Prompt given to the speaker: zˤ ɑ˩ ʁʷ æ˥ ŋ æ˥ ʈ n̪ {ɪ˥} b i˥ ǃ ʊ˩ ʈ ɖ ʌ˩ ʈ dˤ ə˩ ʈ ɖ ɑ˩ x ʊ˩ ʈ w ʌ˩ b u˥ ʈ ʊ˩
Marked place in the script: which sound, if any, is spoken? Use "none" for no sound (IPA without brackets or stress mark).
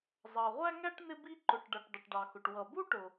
ɪ˥